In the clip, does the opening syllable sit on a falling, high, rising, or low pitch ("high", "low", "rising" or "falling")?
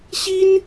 high